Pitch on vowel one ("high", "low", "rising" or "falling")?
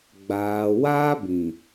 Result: low